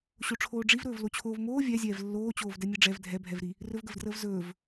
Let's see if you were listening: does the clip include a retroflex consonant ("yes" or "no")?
yes